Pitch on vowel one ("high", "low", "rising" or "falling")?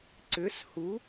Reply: rising